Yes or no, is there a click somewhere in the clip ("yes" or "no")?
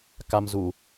no